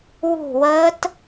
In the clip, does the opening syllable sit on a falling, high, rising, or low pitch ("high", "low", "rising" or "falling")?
falling